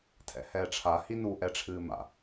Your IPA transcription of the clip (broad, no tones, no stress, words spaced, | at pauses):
tʰɛ̰hɛːʈ͡ʂʰa hinu ʔɛʈ͡ʂʰɨːma̰